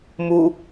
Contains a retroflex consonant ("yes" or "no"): no